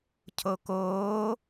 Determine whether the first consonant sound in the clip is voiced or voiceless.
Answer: voiceless